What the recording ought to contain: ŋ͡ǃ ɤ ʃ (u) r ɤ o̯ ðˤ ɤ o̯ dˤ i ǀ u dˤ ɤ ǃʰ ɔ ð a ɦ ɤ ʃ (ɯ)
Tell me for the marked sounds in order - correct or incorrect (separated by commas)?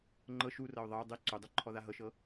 correct, incorrect